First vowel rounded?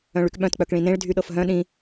yes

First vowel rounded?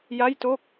no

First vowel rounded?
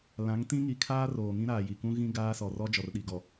no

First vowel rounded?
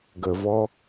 no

